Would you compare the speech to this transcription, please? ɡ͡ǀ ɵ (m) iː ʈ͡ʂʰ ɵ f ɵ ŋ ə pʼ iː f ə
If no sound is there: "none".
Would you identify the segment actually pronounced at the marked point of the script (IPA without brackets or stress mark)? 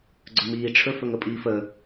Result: m